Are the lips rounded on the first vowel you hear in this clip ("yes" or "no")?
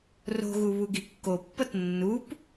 yes